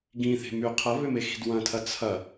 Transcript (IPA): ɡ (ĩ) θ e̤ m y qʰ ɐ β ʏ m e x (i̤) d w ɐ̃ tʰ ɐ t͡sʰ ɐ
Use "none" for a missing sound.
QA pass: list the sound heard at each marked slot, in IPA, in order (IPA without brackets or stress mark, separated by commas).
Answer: ĩ, i̤